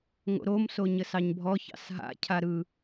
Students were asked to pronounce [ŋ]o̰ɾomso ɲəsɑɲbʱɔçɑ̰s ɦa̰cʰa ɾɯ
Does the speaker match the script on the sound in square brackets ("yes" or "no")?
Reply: yes